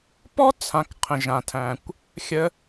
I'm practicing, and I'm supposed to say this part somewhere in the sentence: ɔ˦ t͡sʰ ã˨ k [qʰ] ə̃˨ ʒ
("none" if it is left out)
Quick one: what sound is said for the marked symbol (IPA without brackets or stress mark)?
qʰ